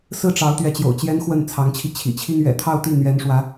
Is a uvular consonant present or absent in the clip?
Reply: absent